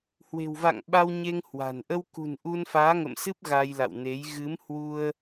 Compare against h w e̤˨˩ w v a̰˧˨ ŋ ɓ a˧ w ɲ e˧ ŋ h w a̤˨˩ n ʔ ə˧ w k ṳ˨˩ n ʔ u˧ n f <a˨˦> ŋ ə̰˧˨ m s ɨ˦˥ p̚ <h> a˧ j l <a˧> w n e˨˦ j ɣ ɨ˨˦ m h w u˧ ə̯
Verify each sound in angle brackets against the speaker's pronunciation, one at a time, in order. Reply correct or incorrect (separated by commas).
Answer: incorrect, incorrect, incorrect